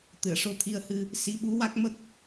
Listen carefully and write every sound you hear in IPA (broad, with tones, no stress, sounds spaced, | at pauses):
t̪ ɨ˨˩˨ ə̯ ʂ o˧ t̪ʰ i˧ ə̯ h ɨ˧ | s i˧˥ ɓ u˧˥ w a˦˥ k̚ m ə˦˥ k̚